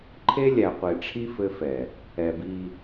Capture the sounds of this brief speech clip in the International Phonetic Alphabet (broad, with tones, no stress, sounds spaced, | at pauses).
ǃʰ e˦ lʲ æ˨ qʷ e˨ ʈ͡ʂʰ i˦ f ɘ˦ f ɛ˨ | ɛ˨ b i˦